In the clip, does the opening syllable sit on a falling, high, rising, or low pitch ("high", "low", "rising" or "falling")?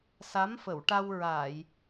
rising